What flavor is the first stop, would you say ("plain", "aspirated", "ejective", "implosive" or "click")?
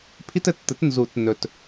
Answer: aspirated